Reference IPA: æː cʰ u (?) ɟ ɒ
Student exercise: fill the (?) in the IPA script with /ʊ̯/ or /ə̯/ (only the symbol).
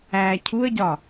ə̯